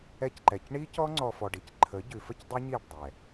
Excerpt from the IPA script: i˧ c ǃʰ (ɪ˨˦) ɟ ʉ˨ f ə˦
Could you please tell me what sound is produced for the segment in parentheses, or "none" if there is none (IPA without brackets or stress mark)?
ə˨˦